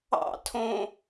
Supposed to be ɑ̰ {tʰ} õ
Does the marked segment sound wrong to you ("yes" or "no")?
no